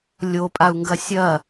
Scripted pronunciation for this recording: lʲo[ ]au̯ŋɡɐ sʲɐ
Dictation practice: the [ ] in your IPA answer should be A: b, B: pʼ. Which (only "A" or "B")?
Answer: B